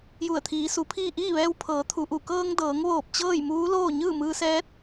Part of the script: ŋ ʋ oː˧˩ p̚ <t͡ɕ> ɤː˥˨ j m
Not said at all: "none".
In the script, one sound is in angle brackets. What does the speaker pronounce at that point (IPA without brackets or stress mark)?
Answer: t͡ɕ